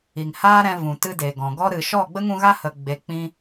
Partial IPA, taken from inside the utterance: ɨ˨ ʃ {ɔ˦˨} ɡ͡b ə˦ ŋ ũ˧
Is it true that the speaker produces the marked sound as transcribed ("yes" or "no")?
yes